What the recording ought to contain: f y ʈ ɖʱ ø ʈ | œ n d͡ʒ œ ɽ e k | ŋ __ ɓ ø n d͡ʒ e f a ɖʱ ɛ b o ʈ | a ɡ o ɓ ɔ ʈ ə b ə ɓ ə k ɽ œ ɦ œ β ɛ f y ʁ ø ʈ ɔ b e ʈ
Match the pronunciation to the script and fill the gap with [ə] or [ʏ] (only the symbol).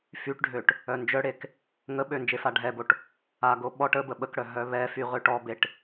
ə